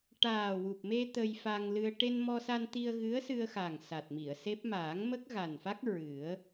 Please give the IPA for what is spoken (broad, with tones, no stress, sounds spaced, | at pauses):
ʈ aː˨˩ w u˨˩ p̚ m e˧ t̪ ə˧ j f a˧ ŋ l ɨ˧ ə̯ ʈ e˧ n m ɔ˧ s a˧ n t̪ i˧ ə̯ ɣ ɨ˧˥ ə̯ s ɨ˧ ə̯ x a˨˩ ŋ s a˨˩ t̚ m i˨˩˨ ə̯ s e˦˥ p̚ m aː˨˩˦ ŋ m ə˦˥ k̚ ɣ a˨˩ n f a˦˥ k̚ ɹ ɨ˨˩˦ ə̯